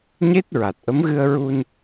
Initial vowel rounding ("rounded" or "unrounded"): unrounded